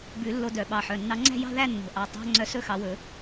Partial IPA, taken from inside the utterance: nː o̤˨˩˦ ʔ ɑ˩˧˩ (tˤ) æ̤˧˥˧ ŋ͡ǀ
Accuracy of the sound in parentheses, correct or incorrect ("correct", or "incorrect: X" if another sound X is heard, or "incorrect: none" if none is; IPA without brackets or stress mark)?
correct